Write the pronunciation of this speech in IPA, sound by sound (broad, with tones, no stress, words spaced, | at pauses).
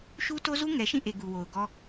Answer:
ʃu˦to˦zu˦ ŋɛ˨ʃĩ˦˨ʔe˨ ɡu˨wo˨ʊ̯ɡɔ˦